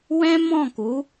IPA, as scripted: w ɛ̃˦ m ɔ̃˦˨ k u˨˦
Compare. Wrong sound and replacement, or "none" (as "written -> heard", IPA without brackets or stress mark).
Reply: none